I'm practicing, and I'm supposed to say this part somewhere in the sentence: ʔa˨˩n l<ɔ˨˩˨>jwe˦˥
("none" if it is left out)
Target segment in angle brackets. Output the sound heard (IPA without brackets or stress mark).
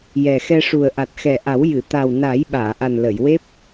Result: ə˨˩˨